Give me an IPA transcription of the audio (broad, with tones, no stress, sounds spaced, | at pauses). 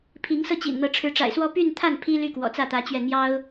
pʰ i˧˥ ŋ s ɤ˥˩ t͡ɕ ḭ˨˩ n n̪ ɤ˧˥ ʈ͡ʂʰ ɻ̩˧˥ ʈ͡ʂ a̰˨˩ ɪ̯ s w ɔ˥ p y˥˧ n t̪ʰ a˥˩ n pʰ i˥ l y˥˩ k w ɔ̰˨˩ t͡s ä˥˩ t̪ ä˧˥ t͡ɕ ɥ ɛ˥˩ n̪ j ɑ˥ ʊ̯